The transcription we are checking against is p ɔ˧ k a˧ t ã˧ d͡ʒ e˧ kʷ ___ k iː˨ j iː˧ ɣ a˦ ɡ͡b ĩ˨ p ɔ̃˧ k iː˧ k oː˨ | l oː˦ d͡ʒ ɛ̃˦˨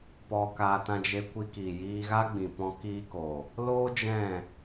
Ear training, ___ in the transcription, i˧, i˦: i˧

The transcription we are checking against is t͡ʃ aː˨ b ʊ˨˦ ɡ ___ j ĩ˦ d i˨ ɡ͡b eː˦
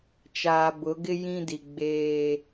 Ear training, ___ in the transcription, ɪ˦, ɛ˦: ɪ˦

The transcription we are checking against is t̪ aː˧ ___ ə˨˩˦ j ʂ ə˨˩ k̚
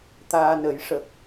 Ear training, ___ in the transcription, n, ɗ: n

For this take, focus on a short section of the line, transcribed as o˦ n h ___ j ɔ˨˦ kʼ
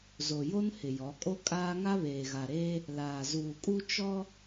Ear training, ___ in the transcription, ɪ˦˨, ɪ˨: ɪ˨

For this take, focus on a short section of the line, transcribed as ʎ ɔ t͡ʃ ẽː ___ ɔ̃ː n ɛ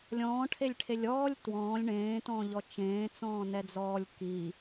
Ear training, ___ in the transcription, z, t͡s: t͡s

